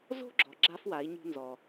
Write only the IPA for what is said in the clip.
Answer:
z o̤˦ ɡ͡ǁ ɔ˨ ɡ͡ǁ a˦ f w a˨˦ i̯ ɲ ṳ˧ n z ɔ˨

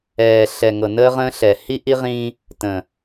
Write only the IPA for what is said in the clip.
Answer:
ɛː˨ ɬ ɛ˨ ŋ ɤ˨ n əː˦ ʁ ə̃ː˦ ɬ ɛ˨ h i˦ ʔ i˦ ʁ ĩː˦ | t ə̃˨

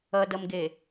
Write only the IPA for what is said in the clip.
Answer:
ʌ d ʌ m ɡ e

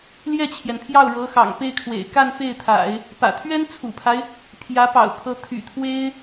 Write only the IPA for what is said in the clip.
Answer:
l j ɛ˥˩ t͡ɕʰ j ɛ˩ n pʰ j ɑ˥˩ ʊ̯ ɻ ɤ˧˥ x ɑ̰˨˩ ŋ p e˥˩ ɪ̯ kʰ w ḛ˨˩ ɪ̯ k a˥˧ n f e˥˩ ɪ̯ t̪ʰ a̰˨˩˦ ɪ̯ | p ä̰˨˩ t̪ʰ ɥ ɛ˥ n t͡sʰ ṵ˨˩ pʰ a˦ ɪ̯ | pʰ j ä˧˥ p ɑ̰˨˩ ʊ̯ t̪ʰ ɤ˧˥ t̪ʰ y̰˨˩ t̪ʰ w e˥ ɪ̯

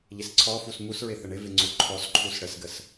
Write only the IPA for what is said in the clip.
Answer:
ʎ ɪ s ǀʰ ɔ f u s m u s ɹ ɪ θ ə ɳ ɪ v ɪ ŋ͡ǀ u ǃʰ ɔ s ǃʰ u s ɽ ə s ɡ ə s

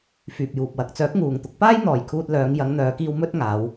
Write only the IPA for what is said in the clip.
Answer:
f yː˨ p̚ j uː˨ p̚ w ɐ˨˥ k̚ t͡s œː˨˥ k̚ ŋ uː˨ ŋ t̪ ʊ˨˥ k̚ p aː˥ j n̪ ɔː˨ j kʰ uː˧ t̚ l œː˨˧ ŋ j ɐ˨˧ ŋ n̪ œː˨˧ k iː˧ w m ɵ˥ t̚ ŋ aː˨˧ w

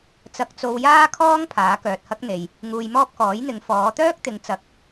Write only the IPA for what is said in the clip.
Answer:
t͡s ɐ˧ k̚ t͡s o˧ w j aː˥ kʰ ɔː˥ ŋ pʰ aː˨˥ k œː˨ t̚ h ɐ˥ k̚ n̪ e˨ j | ŋ uː˧ j m ɔː˥ p̚ k ɔː˨˥ j n̪ ɪ˨˧ ŋ f ɔː˨˧ t̪ œː˥ k̚ t̪ ɪ˨˧ ŋ t͡s ɐ˨˥ k̚

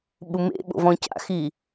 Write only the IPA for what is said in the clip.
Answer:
ɓ u m ḛ ɓ o̰ v ɔ̃ c a̰ x i

